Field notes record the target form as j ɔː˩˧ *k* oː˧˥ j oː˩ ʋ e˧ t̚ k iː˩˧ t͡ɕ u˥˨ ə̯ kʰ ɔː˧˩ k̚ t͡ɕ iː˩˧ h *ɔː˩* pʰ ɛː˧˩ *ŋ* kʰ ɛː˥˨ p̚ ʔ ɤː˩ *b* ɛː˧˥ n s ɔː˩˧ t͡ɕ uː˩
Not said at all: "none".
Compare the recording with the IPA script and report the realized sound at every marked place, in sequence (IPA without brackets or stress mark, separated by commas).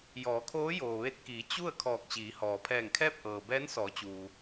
kʰ, ɔː˩, ŋ, b